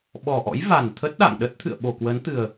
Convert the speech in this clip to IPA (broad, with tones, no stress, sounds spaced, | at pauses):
ɓ ɔ˨˩ ʔ ɔ̰˧˥ j v a˨˩ n t̪ʰ ə˦˥ t̚ ɗ a̰˧˨ ŋ ɗ ə˦˥ t̚ t̪ʰ ɨ̰˧˨ ə̯ ɓ o˨˩ k w ə˨˦ n t̪ ɨ˨˩ ə̯